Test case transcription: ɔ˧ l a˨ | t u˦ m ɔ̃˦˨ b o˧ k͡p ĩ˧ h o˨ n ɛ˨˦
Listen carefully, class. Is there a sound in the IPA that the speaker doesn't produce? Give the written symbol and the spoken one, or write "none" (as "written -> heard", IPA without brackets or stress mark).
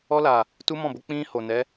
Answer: none